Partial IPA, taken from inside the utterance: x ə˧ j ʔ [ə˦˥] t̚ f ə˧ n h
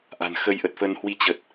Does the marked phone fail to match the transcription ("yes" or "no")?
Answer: yes